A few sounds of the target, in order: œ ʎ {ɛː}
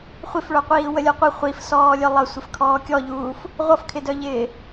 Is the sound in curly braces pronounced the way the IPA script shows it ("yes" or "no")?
no